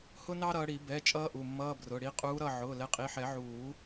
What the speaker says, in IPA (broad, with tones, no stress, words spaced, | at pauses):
hʊ˥nɑ˥ɾʌː˨˦ɽi˨˩˦ bɛ˩˧˩ t͡ʃʼʌː˥ʔu˩˧˩mːʌː˧˥˧ brʊ˩˧˩ ɽi˨˦qʼuː˨˦ɾʌ˩˧˩ ʕʊː˩˧˩lɛ˨˦qʼi˩˧˩ħɛ˨˩˦ ʕuː˨˩˦